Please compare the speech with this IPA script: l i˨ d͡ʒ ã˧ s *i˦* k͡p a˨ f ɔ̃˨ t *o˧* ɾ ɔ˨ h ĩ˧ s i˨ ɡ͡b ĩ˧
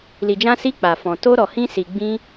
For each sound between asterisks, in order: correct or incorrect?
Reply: incorrect, correct

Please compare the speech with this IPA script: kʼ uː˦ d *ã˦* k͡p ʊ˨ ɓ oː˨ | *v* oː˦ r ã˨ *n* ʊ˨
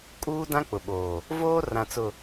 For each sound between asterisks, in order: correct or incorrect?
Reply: correct, correct, incorrect

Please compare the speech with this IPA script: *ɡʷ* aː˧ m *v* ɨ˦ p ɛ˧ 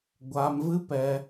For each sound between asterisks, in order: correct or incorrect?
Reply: correct, correct

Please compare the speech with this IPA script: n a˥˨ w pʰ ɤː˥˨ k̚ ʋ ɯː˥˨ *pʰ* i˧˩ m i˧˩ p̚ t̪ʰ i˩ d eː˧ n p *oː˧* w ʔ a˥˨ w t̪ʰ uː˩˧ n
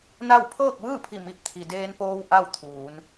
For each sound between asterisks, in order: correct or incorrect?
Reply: correct, correct

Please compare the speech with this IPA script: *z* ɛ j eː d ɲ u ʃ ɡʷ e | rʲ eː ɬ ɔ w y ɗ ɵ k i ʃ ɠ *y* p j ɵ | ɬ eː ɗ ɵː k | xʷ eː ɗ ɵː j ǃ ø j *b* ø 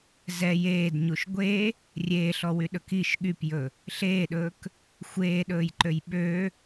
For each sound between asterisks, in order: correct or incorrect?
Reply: correct, correct, incorrect

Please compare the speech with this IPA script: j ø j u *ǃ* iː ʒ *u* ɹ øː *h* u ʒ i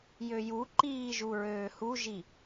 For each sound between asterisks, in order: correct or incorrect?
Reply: correct, correct, correct

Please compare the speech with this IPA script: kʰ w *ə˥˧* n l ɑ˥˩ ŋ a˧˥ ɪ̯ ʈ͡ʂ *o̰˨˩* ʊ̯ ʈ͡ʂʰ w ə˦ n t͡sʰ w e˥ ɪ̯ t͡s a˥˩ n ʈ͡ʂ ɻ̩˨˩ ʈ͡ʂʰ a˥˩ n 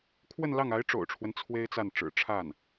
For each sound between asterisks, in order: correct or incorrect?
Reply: correct, correct

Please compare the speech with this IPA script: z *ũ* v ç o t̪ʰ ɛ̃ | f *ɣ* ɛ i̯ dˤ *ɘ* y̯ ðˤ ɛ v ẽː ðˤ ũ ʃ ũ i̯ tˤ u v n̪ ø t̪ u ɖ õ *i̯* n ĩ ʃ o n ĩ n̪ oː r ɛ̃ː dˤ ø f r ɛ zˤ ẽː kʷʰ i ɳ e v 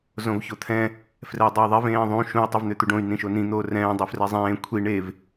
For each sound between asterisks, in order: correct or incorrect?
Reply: incorrect, incorrect, incorrect, incorrect

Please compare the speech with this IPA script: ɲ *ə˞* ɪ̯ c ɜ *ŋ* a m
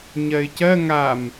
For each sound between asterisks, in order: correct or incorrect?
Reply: incorrect, correct

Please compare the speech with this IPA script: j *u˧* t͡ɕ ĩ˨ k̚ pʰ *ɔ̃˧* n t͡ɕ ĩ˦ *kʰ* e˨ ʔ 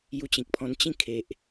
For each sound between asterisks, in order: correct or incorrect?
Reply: correct, correct, correct

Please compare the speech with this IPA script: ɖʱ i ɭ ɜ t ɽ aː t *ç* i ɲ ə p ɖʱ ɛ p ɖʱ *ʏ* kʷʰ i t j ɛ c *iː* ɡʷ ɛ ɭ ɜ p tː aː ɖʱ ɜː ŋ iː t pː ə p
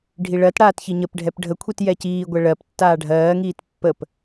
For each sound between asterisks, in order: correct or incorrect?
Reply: correct, incorrect, correct

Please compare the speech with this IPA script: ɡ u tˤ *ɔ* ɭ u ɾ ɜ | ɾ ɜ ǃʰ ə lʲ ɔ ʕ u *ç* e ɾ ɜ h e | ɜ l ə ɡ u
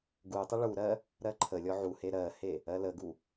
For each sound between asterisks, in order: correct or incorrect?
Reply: incorrect, incorrect

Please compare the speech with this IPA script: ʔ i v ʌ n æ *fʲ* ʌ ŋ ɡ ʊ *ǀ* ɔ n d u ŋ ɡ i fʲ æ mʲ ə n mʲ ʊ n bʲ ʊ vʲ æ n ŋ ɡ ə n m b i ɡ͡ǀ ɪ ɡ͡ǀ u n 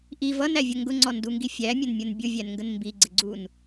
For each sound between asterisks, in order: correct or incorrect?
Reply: incorrect, incorrect

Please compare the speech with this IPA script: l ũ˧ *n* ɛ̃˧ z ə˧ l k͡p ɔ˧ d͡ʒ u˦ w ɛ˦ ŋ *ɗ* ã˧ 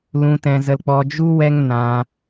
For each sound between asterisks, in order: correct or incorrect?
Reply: incorrect, incorrect

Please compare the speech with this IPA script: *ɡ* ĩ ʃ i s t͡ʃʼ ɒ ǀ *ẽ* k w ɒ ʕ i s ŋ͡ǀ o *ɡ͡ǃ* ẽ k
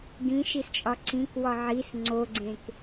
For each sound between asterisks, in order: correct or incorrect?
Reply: correct, incorrect, incorrect

